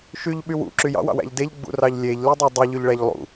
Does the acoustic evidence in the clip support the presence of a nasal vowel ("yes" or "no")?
no